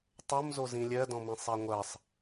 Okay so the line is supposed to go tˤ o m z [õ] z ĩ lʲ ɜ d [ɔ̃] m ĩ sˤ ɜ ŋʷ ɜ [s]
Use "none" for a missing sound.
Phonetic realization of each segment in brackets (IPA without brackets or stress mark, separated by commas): o, ɔ̃, sˤ